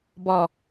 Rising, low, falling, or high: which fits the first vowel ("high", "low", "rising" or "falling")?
low